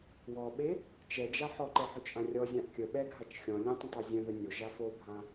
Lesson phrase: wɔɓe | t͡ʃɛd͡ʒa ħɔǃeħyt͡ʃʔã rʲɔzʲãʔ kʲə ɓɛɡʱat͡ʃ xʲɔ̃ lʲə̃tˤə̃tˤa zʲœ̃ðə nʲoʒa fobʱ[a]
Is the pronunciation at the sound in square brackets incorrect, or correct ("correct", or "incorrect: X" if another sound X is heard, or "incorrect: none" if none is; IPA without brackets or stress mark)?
incorrect: ã